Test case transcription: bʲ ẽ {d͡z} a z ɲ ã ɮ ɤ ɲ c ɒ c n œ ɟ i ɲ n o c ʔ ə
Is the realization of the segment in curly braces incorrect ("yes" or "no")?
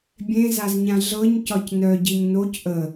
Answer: yes